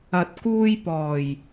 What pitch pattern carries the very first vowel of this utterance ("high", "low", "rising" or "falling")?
rising